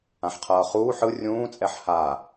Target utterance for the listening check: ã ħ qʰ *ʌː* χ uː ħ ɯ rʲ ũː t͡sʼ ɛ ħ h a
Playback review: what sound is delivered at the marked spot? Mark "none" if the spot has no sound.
ʌː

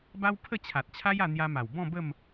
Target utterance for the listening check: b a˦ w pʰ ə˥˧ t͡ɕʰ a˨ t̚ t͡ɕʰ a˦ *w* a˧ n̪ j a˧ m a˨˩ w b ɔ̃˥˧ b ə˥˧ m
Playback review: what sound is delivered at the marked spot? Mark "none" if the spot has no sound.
j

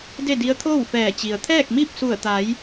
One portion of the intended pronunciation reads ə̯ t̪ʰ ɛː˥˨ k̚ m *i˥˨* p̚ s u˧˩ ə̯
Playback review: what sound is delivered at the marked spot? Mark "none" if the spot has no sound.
i˥˨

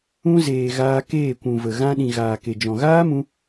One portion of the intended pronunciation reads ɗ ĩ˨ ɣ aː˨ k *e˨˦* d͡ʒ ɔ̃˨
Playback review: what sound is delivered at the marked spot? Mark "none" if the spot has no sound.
e˨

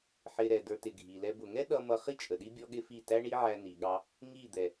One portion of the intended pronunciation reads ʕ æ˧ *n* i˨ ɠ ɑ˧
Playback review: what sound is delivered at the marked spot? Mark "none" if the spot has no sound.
n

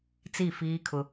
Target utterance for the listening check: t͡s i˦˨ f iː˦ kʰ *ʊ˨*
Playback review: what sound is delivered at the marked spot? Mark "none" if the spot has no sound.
ʊ˦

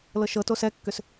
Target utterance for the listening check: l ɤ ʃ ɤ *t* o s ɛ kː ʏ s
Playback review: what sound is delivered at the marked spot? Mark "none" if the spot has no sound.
t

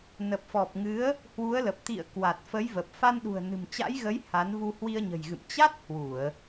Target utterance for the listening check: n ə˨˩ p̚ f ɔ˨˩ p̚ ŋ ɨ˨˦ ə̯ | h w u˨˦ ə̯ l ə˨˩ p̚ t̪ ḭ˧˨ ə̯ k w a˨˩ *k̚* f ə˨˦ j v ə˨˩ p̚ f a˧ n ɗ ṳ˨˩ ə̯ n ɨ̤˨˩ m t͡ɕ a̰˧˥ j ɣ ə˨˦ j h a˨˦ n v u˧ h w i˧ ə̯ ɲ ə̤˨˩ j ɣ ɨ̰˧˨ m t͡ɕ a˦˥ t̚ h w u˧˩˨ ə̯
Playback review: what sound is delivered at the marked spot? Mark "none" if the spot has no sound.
t̚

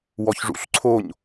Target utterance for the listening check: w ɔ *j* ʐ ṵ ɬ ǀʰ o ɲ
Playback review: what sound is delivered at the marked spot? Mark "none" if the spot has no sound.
ç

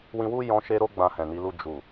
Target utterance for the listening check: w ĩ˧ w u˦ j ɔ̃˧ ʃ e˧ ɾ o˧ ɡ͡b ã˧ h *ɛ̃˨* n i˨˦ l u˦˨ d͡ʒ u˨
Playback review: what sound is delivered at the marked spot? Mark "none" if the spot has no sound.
ɛ̃˨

